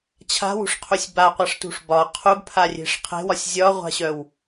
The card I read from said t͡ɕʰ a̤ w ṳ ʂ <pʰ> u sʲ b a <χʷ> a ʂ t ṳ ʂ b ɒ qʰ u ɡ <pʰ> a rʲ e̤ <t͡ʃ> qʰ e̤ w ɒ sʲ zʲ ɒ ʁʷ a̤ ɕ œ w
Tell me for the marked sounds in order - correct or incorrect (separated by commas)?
incorrect, incorrect, correct, incorrect